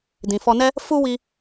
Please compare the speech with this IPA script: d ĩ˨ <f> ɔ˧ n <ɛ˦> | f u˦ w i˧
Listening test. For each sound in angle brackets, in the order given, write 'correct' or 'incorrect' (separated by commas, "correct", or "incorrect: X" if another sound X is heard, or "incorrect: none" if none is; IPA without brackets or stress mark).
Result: correct, correct